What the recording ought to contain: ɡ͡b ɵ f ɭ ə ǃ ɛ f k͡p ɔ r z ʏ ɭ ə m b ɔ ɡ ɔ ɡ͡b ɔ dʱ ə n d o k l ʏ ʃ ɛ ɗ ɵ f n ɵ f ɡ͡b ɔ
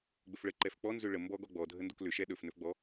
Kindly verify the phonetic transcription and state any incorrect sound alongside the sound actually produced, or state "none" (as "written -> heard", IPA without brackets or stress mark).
r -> n